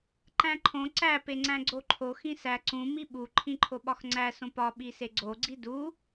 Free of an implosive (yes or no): no